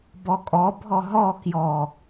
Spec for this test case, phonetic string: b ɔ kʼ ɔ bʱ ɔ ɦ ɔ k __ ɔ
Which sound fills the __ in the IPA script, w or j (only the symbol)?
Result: j